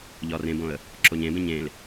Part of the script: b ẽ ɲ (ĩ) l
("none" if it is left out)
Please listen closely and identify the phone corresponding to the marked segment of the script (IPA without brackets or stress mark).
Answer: ẽ